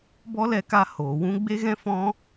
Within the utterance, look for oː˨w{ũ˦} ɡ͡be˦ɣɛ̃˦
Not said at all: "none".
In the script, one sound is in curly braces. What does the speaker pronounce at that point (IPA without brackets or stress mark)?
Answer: ũ˦